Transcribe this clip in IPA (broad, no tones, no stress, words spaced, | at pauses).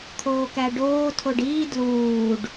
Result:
t̪ʰoːkæɖoː tʰoɖiː dluːɖ